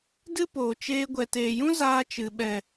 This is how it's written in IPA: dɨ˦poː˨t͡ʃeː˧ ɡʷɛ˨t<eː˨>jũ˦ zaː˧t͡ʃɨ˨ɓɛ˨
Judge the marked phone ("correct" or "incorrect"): correct